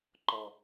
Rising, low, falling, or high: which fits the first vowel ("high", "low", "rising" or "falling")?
low